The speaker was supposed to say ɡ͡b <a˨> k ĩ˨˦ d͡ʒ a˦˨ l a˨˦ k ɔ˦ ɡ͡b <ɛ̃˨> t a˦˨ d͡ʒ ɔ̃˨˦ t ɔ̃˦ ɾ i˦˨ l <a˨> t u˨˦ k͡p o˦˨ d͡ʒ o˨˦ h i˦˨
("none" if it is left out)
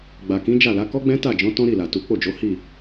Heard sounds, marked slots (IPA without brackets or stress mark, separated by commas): a˨, ɛ̃˦, a˨